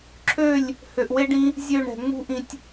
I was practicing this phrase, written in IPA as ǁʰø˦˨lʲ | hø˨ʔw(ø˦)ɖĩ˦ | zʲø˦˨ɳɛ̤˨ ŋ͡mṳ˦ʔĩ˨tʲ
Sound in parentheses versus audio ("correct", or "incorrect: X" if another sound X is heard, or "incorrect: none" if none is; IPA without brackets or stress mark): incorrect: e˦